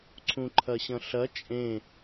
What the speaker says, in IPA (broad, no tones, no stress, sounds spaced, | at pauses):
ǀʰ ũ ǃʰ ɐ ɕ ɐ̃ ɬ ɐ t͡ʃʼ ẽ